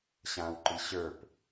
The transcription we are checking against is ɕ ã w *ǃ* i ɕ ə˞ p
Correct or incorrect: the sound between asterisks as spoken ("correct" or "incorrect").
correct